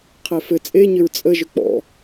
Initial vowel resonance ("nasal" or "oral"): oral